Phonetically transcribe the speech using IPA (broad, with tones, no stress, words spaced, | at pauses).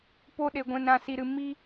po˧ɗe˨ ɡʷɛ̃˨nɾã˨ si˨ɾɨ˨ mi˧